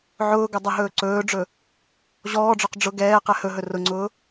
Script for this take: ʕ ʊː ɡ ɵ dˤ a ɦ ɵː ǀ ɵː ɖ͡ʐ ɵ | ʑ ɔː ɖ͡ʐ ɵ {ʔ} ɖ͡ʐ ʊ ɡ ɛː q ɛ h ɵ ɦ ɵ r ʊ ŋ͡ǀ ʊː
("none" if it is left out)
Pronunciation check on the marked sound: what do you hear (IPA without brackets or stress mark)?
q